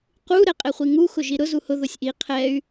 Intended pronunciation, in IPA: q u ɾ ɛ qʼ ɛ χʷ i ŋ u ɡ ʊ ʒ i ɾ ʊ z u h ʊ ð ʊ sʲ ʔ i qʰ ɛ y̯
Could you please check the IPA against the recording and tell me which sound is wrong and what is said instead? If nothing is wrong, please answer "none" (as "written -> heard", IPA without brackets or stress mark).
ɡ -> x